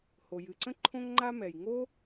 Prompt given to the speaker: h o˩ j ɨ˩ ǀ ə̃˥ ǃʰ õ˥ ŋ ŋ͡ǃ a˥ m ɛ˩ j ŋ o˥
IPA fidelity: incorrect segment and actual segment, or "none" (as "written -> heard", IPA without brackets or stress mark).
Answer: none